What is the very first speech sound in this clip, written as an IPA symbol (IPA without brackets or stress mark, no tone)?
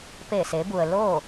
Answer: p